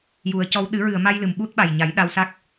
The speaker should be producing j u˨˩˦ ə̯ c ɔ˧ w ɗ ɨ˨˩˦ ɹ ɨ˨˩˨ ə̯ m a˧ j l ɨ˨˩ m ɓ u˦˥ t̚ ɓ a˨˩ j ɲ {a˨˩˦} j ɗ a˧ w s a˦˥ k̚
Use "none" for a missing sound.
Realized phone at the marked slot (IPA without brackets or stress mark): a˨˩˦